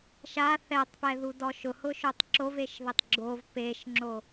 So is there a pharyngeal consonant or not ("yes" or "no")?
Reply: no